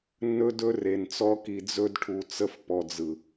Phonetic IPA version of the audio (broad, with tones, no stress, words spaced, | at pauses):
nːɵ˦dɵ˦re˨nt͡sɔ˦ ki˨d͡zɵ˦dʈʰu˨t͡sə˦f pɔ˨d͡zɯ˨